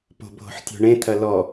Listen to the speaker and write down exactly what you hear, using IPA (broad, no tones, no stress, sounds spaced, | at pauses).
p o̤ bʱ o̤ ħ tʲ o̤ ɳ ẽ t̪ʰ ɐ l ɔ